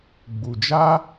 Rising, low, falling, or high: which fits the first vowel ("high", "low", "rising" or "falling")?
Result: low